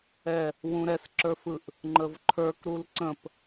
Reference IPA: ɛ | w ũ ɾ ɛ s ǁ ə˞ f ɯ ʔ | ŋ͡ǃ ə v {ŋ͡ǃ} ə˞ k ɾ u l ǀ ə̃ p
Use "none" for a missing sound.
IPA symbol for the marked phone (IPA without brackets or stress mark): ǃʰ